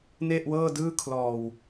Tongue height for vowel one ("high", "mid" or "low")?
mid